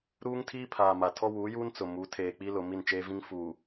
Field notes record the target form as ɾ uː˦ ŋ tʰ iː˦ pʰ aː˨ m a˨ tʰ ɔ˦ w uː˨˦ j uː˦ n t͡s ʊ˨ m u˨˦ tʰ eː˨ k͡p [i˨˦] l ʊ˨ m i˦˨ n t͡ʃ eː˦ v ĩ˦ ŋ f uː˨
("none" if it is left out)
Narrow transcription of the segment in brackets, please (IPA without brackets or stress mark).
i˦